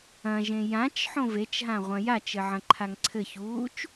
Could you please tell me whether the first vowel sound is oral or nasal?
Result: nasal